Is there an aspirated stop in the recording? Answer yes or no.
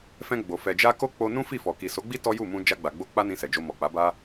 no